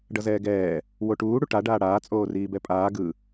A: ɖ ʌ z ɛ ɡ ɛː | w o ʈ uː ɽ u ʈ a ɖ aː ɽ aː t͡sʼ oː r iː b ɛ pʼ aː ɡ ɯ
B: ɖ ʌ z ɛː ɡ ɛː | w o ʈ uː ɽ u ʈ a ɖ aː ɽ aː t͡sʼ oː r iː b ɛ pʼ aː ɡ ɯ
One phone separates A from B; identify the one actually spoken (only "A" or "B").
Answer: B